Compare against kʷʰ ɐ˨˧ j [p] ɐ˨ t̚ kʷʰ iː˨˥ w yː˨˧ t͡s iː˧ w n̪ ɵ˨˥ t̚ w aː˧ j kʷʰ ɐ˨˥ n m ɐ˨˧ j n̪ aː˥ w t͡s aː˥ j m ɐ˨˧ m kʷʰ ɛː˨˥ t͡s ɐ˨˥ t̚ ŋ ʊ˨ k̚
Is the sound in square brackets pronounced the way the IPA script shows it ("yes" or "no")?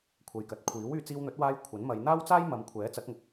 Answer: no